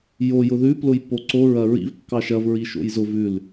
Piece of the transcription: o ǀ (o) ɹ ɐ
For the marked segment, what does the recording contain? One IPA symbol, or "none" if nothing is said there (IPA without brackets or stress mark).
o